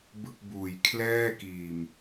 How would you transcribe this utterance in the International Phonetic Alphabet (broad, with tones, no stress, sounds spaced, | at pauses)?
b ɯ˥˩ k̚ b uː˨˩ j kʰ l ɛː˥˩ k iː˨˩ m